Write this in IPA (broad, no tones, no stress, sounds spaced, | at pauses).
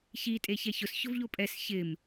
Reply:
ç i tʼ e ç ɛ ç ʊ s ç ʊ v ʎ o pʼ ɛ s ç ɪ m